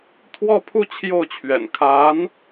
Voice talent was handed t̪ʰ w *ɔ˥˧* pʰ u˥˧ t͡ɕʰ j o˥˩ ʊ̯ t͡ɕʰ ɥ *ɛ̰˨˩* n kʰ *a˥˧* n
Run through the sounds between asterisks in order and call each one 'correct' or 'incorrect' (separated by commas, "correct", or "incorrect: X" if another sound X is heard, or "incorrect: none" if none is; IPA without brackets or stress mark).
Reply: correct, correct, incorrect: a˧˥